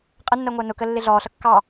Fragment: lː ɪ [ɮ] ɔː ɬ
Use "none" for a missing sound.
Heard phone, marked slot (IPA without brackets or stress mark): ɮ